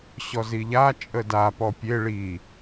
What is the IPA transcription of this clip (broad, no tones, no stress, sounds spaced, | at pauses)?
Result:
ɕ ɔ z i ʎ a t͡ʃʼ ə d a p ɔ pʲ e ɭ i